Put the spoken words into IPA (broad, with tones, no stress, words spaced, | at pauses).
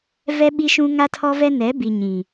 vɛ˦ɓi˦ʃũ˦ ŋa˦tʰɔ˦vɛ˦ nɛ˨˦ bi˨ ɲĩ˨